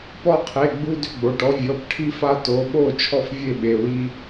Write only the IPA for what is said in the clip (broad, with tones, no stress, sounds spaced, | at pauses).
p ɔ˥˨ qʰ e˩˧˩ ɡ͡b u˦ d ʏ˦ ɡ͡b o˩˧˩ ʈ ɔ˦ vʲ ɔ˩˧˩ p ʈʰ i˦ f a˦ t o˩˧˩ ɓ o˥˨ t͡ʃʰ ɔ˥˨ f vʲ e˥˨ ɓ e˩˧˩ w i˦